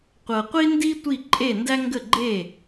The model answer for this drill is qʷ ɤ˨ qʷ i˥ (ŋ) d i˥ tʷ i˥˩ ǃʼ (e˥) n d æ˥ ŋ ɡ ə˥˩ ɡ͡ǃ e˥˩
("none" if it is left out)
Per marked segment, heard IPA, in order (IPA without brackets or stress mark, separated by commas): n, e˥˩